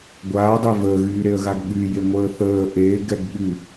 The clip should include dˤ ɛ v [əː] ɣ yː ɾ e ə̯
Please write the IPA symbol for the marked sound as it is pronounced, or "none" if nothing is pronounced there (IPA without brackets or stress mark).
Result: əː